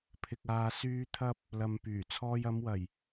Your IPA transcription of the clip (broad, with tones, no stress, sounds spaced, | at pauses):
pʰ ɪ˧ k̚ aː˧ s yː˨ t̪ʰ ɐ˧ p̚ | l ɐ˨ m p yː˨˩ t͡sʰ ɔː˧ j ɐ˨˧ m w ɐ˨˩ j